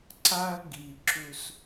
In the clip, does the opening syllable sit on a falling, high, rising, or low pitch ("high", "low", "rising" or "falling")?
high